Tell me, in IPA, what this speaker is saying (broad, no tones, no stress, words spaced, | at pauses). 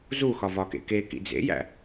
zuxɒ vɒkḛkekḭ d͡zḛjæ̰